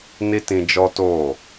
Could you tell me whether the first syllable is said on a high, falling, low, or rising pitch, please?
high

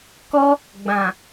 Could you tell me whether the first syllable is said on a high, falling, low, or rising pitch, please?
high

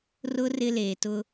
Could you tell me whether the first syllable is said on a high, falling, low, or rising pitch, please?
high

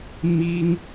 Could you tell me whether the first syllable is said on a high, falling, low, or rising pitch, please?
high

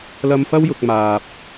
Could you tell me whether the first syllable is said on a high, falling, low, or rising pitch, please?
high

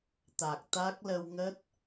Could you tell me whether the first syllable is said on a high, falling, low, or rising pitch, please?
low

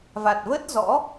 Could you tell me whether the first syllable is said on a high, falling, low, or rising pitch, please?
low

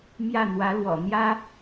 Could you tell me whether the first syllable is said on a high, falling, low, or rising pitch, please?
falling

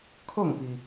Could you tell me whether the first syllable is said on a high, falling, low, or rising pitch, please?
falling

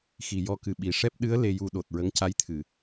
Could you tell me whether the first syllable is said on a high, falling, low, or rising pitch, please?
low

